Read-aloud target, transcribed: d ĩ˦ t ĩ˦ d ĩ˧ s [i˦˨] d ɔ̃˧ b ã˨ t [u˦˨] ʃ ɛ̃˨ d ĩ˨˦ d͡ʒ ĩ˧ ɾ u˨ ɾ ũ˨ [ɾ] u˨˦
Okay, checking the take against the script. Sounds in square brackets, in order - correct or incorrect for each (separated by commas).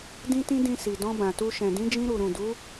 incorrect, incorrect, incorrect